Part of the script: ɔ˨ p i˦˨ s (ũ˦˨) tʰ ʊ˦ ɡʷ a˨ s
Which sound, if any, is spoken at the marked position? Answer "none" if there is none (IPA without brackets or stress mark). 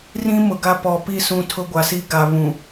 ũ˦˨